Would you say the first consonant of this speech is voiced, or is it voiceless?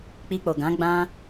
voiceless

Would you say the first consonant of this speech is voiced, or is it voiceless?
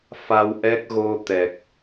voiceless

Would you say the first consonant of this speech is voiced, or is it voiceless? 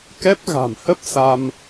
voiceless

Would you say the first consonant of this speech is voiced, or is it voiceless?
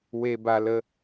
voiced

